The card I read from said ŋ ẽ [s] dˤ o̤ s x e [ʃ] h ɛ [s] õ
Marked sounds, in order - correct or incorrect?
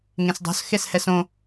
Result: correct, incorrect, correct

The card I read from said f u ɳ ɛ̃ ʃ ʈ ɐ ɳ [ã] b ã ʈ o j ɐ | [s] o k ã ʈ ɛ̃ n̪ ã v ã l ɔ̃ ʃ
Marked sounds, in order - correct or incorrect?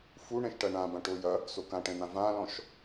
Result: correct, correct

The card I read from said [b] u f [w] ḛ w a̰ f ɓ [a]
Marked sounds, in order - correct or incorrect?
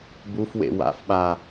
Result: correct, correct, correct

